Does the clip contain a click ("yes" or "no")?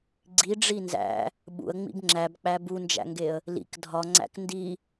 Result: yes